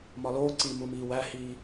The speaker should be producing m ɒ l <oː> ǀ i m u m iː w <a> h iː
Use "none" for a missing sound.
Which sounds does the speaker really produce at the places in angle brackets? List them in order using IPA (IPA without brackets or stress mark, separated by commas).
oː, æ